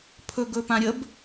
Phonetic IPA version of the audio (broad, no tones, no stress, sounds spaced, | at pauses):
pʰ ɵ ɡ ɵ p ã ɾʲ ə b